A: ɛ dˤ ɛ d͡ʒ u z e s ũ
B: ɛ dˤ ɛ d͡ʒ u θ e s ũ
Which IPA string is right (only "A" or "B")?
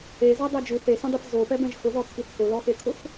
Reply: B